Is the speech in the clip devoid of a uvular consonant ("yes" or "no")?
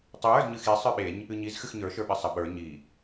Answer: yes